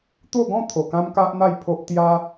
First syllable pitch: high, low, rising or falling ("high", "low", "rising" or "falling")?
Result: falling